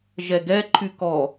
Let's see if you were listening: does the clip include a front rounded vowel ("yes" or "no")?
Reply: yes